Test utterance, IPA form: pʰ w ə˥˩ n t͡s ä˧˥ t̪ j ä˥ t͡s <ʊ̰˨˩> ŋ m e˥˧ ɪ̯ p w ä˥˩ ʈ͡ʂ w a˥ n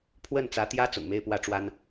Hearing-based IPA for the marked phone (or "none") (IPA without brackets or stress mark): ʊ̰˨˩